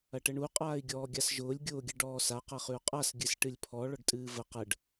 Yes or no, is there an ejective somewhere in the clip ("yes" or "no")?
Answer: yes